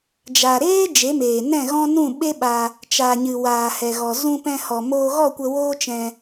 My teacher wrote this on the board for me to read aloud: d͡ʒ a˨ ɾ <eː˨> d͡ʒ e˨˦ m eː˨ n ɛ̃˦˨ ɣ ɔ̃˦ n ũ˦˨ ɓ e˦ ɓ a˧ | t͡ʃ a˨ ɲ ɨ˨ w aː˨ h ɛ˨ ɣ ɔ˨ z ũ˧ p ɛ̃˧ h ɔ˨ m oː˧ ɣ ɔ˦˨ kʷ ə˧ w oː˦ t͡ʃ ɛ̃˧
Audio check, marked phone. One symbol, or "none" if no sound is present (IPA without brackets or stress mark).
eː˦